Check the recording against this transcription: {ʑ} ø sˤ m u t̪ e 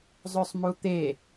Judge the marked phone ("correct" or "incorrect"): incorrect